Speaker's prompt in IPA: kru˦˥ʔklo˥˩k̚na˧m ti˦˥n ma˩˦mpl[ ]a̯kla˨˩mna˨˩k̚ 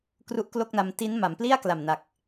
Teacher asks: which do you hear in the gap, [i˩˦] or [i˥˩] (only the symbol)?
i˥˩